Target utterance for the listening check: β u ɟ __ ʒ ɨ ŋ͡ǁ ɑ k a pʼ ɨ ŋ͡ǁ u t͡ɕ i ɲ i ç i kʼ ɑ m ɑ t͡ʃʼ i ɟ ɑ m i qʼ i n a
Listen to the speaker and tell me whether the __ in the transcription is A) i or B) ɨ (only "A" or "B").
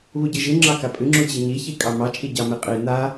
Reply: B